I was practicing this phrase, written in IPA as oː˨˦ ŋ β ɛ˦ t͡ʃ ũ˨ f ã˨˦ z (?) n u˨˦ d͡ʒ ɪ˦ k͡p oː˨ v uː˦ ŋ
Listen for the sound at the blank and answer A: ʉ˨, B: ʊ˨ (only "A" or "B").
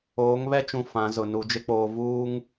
B